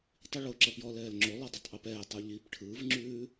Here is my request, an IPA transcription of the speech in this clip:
tˤ i ɭ o ǁ ʌ p j ɔ l ɛː l ŋ͡ǁ o lˠ ʉ dˤ ʌ tˤ ʔ u p ɛː tˤ ɯ ʎ i p ʈʰ ɯː v ŋ͡ǁ ʉː

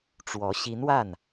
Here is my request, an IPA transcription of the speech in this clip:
ʈ͡ʂ w ɔ˧˥ ɕ i˧˥ n w a˥˩ n

